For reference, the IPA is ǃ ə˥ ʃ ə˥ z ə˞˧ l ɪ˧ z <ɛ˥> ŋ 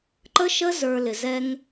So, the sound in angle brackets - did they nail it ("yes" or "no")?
yes